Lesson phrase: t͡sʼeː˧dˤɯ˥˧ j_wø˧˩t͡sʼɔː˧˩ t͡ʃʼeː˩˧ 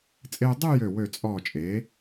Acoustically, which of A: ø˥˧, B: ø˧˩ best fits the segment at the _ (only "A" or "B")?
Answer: B